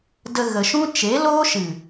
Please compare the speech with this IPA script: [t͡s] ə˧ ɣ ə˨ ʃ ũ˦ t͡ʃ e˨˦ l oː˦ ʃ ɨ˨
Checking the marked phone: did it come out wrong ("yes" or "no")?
yes